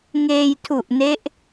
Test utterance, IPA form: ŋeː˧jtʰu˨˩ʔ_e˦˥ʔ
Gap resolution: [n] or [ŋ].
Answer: n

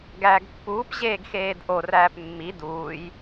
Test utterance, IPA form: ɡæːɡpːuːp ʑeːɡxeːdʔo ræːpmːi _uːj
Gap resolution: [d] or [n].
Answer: d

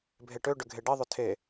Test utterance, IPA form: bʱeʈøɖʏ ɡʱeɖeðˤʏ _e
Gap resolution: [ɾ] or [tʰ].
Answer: tʰ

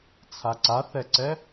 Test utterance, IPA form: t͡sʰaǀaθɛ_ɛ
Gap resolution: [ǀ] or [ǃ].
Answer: ǀ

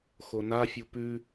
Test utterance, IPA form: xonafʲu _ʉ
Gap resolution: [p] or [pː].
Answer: p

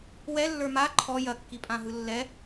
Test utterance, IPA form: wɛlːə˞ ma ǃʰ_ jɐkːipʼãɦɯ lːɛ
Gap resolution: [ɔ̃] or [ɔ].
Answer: ɔ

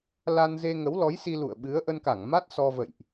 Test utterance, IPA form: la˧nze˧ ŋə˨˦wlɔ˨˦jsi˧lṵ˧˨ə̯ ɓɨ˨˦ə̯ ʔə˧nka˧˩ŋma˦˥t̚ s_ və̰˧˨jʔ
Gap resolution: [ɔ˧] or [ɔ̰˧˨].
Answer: ɔ˧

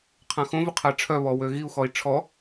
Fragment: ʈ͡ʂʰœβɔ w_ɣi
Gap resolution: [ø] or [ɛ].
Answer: ø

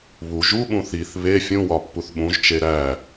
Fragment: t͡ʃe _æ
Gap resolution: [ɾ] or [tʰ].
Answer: ɾ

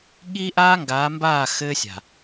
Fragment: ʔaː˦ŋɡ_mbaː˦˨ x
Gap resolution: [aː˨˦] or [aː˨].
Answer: aː˨˦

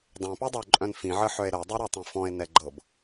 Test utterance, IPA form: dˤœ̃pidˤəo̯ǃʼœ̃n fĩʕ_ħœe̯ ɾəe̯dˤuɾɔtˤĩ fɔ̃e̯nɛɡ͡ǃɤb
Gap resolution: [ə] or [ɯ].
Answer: ə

